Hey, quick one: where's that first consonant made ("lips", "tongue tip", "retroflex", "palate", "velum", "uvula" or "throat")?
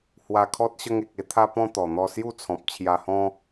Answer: throat